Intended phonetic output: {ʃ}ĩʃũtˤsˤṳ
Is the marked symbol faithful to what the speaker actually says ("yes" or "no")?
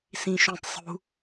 no